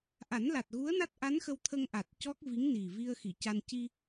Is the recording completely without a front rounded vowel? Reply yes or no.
yes